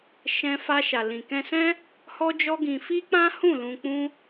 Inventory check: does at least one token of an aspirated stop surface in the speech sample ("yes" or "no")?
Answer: no